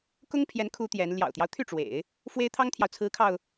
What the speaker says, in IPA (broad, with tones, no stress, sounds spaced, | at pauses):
k ʊ˥ ŋ pʰ j ɛ˧˥ n kʰ u˧˥ t̪ j ɛ˧˥ n l j ɑ̰˨˩ ʊ̯ t̪ j ɑ˦ ʊ̯ t̪ʰ y˥˩ ʈ͡ʂ w ḛ˨˩˦ ɪ̯ | f w e˥ ɪ̯ t̪ʰ ɑ˥ ŋ t̪ʰ j ɑ˨ ʊ̯ t͡sʰ ɹ̩˧˥ kʰ ɑ˧ ʊ̯